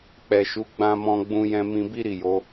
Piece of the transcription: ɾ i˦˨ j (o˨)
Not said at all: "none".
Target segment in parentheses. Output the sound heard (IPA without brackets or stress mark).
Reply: o˨˦